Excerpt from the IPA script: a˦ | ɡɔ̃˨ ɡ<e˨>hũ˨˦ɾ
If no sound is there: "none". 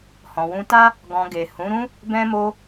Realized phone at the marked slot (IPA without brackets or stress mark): e˨